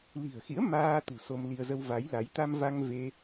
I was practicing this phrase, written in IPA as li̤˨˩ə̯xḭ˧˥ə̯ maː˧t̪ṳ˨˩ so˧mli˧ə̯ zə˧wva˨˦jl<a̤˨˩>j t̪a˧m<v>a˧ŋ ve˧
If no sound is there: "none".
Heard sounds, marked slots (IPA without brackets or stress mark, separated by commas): a˨˦, v